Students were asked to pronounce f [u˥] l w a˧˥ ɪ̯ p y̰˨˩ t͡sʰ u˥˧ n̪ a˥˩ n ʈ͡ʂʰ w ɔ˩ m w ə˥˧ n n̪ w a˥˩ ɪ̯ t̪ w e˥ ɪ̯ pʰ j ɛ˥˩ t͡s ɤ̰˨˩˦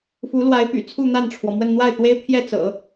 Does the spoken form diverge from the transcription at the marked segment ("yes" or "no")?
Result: yes